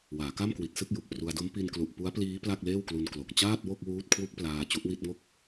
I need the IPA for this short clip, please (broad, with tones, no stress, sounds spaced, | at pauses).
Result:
w aː˩˦ k a˥˩ m k w i˨˩ t̚ s ɯ˥˩ k̚ j u˨˩ k̚ p r u˧ a̯ d o˦˥ m p i˧ n k l u˨˩ ʔ p u˦˥ a̯ p l iː˦˥ p l a˥˩ k̚ l eː˥˩ w k l u˧ n k l o˨˩ k̚ t͡ɕ aː˥˩ t̚ w o˥˩ k̚ w uː˦˥ t̚ kʰ w u˦˥ k̚ p l aː˧ t͡ɕ u˦˥ ʔ w i˥˩ t̚ ŋ o˥˩ k̚